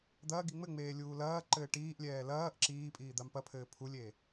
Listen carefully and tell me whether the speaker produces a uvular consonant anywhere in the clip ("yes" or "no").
no